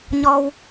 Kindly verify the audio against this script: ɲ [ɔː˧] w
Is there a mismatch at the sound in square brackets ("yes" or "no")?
yes